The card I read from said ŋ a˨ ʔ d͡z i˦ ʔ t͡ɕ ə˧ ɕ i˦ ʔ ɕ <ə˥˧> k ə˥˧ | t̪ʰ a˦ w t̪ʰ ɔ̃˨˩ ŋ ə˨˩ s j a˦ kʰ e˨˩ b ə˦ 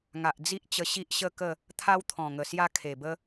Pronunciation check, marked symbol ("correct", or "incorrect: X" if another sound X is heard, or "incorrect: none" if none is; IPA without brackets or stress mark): correct